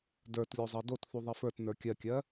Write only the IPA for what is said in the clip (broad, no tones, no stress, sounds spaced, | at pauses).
d ə˞ t lʲ o zˤ ɜ d o t θ u ðˤ i f ə˞ t n ə˞ kʲ ɜ kʲ ɜ